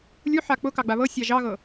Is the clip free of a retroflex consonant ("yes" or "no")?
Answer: yes